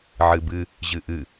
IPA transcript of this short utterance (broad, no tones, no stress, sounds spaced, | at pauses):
ʕ ɨ b ɨ | ʑ ɨ ʔ ɨ